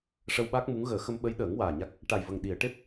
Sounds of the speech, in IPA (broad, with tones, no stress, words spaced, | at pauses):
ʂə˧wɓa˦˥k̚mu˧˥ŋ ɣəː˨˩˦xə˧mɓə˧˥jɗəː˨˩˦ŋ waː˨˩ ɲa˦˥k̚ | ʈa˨˩jvə˨˩ŋ ɗi˨˩˨ə̯ʈe˦˥p̚